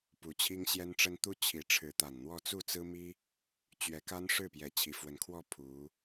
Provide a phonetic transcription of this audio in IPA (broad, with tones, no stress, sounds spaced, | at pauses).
p u˧˥ t͡ɕʰ i˥ ŋ ɕ j ɛ˥ n ʈ͡ʂ ə˥ n t̪ u˥ t͡ɕʰ i˧˥ ʈ͡ʂʰ ɻ̩˧˥ t̪ a˨˩ n n̪ w ɔ˥˧ t͡s u˥˩ t͡s ɹ̩˥ m i˥ | t͡ɕ ɥ ɛ˧˥ k a˥ n ʂ ɻ̩˥˩ p j ɛ˧˥ t͡ɕʰ i˨˩ f w ə˧˥ n kʰ w ɔ˥˩ pʰ u˧˥